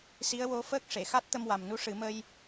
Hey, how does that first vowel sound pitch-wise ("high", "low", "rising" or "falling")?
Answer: rising